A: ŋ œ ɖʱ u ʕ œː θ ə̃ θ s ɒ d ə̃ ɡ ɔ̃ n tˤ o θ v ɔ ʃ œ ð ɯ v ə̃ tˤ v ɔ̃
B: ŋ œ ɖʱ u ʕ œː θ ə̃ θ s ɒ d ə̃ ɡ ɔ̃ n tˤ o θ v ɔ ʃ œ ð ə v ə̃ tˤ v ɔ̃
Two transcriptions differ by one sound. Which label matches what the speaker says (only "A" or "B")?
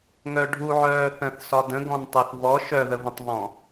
B